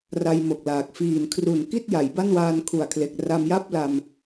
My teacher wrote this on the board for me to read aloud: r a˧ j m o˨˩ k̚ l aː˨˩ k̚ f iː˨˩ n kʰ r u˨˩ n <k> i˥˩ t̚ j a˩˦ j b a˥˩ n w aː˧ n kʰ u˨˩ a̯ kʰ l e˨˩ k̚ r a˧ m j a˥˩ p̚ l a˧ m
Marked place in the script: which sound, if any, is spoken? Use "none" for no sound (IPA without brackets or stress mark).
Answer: k